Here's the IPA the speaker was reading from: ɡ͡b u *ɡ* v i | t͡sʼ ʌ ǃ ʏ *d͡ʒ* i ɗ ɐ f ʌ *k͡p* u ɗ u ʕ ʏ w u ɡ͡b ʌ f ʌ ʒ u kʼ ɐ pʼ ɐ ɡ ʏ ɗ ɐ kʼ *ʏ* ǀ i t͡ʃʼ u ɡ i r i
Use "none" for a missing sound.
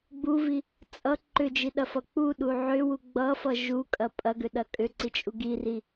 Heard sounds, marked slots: none, d͡ʒ, k͡p, ʏ

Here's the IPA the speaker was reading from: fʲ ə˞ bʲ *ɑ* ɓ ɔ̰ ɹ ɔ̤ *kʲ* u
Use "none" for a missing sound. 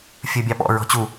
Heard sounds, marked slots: ɑ, t͡ɕ

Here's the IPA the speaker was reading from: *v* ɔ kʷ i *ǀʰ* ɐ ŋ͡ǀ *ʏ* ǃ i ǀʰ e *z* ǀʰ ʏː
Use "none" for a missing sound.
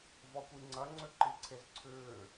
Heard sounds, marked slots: v, ŋ͡ǀ, ʏ, z

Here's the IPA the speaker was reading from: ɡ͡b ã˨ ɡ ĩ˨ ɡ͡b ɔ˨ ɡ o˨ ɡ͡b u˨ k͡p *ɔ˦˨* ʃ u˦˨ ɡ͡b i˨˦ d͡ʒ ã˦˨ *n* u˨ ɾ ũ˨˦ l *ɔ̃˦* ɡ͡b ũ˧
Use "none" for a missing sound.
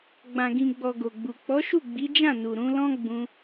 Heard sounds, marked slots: ɔ˨˦, n, ɔ̃˦

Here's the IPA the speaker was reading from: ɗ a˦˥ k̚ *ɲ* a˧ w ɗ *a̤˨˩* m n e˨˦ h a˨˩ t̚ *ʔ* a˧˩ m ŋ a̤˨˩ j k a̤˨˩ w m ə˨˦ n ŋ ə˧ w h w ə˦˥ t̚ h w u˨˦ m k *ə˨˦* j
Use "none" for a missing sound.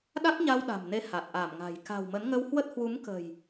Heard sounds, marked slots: ɲ, a̤˨˩, ʔ, ə̤˨˩

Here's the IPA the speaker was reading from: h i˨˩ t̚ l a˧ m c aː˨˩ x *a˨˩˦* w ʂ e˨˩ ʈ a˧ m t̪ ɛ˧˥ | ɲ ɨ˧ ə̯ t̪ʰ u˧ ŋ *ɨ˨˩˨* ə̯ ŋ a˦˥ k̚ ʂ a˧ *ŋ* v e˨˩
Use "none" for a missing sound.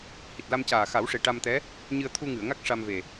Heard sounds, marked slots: a˨˩˦, ɨ˨˩˨, m

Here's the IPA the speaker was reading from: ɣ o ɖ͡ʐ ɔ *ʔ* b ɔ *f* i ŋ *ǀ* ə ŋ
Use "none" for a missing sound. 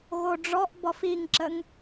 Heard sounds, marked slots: ʔ, f, ǁ

